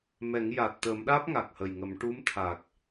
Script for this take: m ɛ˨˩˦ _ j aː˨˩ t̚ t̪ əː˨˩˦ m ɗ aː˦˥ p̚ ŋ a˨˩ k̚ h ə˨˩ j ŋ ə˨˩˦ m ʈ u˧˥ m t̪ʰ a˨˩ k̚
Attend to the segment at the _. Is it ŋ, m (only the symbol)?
ŋ